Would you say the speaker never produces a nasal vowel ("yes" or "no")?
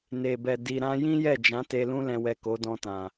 no